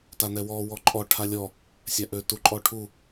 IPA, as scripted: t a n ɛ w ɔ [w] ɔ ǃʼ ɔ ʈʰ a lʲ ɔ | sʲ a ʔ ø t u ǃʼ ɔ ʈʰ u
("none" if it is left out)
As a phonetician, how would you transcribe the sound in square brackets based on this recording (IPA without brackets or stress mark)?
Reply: w